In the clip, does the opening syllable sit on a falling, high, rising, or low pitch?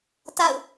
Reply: falling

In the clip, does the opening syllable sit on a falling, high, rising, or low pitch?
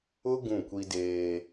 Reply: high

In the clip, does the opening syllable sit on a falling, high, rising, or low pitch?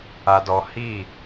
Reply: low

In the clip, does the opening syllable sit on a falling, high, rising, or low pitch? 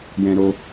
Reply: high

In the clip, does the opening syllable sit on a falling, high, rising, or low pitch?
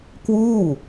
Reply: falling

